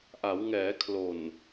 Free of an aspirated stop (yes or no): no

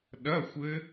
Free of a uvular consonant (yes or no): yes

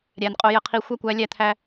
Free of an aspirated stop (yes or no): no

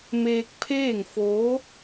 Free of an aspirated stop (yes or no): no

